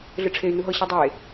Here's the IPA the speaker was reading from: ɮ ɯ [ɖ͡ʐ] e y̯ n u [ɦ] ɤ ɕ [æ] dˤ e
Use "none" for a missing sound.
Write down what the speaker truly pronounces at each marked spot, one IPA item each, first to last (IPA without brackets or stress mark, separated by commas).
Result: ʈ͡ʂʰ, ɦ, a